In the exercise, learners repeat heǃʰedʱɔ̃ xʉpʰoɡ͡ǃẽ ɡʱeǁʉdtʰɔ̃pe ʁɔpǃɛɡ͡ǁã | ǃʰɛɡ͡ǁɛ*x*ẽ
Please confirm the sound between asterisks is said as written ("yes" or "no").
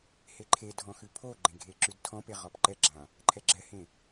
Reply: no